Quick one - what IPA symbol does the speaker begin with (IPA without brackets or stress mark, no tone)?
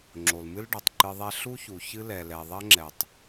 ŋ͡ǁ